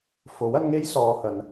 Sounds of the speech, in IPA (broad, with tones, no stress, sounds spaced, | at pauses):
f o˨˥ w ɐ˨˧ n ŋ e˥ j s ɔː˨˧ h ɐ˨˧ n